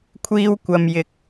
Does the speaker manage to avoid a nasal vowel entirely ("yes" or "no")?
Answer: yes